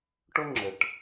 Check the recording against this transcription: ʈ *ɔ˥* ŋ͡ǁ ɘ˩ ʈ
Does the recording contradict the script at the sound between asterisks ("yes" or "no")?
yes